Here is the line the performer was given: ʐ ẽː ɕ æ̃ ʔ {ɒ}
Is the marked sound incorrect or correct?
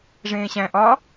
correct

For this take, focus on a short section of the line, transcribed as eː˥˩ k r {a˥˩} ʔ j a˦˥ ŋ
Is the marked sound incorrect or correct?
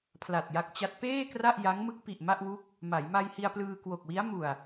correct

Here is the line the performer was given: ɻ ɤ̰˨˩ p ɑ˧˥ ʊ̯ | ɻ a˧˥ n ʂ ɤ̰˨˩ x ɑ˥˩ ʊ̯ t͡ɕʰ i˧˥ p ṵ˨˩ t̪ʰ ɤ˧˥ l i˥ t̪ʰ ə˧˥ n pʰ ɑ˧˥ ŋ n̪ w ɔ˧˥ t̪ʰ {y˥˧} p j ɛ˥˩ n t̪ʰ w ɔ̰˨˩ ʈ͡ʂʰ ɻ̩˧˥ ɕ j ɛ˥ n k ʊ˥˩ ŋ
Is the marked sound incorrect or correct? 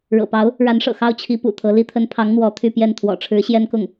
correct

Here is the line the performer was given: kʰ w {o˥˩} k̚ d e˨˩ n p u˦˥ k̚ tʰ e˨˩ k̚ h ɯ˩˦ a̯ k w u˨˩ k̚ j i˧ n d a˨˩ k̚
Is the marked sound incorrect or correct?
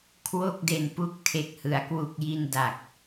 correct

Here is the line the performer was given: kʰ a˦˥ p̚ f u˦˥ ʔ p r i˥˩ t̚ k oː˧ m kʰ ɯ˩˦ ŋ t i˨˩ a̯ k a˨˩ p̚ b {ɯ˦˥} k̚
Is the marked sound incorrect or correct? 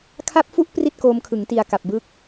correct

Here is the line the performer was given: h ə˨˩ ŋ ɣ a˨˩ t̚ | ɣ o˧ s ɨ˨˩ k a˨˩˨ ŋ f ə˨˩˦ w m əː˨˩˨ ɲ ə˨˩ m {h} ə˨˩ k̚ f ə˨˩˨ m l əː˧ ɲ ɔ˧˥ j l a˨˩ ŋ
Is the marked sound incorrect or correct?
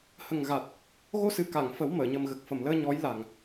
incorrect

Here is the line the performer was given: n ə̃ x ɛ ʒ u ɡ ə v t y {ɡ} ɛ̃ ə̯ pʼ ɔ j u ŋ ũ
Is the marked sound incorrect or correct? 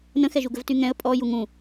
incorrect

